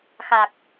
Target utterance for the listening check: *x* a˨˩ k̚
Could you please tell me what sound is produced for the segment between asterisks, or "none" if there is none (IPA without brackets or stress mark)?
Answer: x